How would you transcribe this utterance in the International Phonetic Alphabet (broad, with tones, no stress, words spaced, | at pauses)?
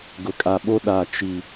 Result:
ɡʊ˨kʼa˨ɓo˦ ɗa˨t͡ʃi˨